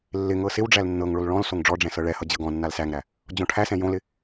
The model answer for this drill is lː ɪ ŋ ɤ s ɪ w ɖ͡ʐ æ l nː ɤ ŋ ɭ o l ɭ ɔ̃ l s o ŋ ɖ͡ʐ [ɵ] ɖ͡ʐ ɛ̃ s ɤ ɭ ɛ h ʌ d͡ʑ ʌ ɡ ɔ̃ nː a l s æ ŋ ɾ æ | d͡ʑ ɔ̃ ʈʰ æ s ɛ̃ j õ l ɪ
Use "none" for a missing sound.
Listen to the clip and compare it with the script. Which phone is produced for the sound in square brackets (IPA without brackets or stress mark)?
ɔ